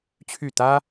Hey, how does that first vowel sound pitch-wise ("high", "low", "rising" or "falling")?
falling